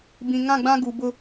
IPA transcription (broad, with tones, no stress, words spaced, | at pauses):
bĩ˨ŋã˦˨ɡ͡bã˦ ɡu˨bʊ˦